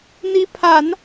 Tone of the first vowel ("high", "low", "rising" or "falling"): rising